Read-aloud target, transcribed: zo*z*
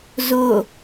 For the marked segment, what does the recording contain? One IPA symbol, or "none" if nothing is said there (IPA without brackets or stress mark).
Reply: none